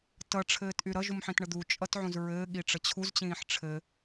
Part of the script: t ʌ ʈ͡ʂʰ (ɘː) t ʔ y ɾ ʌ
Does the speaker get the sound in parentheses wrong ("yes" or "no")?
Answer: no